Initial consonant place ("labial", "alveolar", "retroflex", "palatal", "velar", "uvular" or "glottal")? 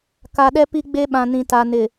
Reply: velar